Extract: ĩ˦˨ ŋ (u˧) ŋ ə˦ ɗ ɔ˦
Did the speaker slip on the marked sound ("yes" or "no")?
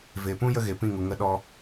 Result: yes